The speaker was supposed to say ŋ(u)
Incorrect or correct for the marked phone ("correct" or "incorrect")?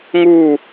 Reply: correct